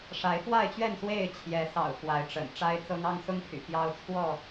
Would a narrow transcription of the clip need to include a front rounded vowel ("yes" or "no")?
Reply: yes